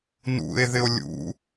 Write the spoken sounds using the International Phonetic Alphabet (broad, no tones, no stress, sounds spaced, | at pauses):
n ṵ e̯ ð ɪ o̯ lʲ ṵ